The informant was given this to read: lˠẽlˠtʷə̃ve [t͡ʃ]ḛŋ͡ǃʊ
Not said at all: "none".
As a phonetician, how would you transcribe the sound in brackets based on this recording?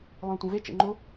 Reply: t͡ʃ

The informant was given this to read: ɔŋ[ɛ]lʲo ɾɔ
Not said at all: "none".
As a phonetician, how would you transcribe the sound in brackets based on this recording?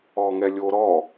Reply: ɛ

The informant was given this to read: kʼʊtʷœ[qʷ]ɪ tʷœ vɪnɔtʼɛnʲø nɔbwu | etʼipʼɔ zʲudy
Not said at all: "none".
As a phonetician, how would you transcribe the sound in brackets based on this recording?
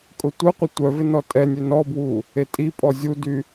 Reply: qʷ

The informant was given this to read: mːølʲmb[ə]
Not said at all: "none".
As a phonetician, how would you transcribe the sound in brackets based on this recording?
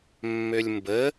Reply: ə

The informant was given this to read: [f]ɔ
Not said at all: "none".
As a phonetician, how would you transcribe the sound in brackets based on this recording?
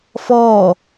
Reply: f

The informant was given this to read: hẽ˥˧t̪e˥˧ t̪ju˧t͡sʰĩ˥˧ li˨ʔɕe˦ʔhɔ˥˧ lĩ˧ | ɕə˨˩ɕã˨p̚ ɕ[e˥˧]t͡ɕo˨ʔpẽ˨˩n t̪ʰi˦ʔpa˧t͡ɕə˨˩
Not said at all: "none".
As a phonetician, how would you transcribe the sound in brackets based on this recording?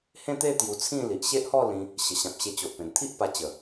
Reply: e˧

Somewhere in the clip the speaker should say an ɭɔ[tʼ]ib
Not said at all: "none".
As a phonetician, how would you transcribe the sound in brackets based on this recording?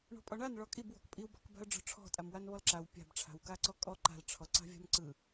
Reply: kʼ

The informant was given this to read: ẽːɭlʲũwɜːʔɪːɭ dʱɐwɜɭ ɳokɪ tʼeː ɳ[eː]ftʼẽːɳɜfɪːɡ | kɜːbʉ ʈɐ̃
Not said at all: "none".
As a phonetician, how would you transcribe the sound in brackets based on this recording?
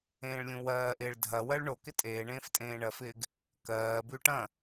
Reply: ẽː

